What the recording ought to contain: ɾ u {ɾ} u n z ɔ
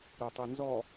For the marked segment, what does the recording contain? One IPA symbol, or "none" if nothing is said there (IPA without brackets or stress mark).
tˤ